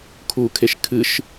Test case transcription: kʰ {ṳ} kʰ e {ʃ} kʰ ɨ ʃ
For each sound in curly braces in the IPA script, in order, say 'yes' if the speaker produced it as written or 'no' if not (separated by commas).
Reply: no, yes